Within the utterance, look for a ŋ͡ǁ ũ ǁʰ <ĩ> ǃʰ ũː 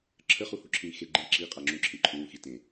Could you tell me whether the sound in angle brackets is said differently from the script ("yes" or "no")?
no